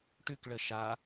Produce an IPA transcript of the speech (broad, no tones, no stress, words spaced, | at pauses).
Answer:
ʈʉk ɭəʃa